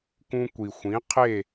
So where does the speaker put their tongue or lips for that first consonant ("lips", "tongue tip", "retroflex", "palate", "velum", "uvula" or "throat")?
velum